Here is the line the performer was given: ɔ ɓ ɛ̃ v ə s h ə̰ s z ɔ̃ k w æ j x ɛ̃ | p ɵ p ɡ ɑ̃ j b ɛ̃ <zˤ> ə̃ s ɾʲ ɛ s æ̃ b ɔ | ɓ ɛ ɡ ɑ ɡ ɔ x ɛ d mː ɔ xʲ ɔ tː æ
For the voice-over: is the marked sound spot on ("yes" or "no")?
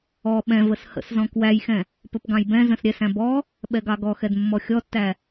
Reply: no